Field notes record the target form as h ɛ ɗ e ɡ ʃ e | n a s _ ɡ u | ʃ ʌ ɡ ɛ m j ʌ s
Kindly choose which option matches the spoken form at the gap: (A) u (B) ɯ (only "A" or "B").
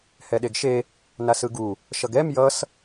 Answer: B